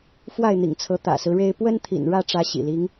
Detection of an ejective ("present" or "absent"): absent